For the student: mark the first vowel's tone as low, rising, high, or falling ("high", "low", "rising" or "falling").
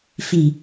low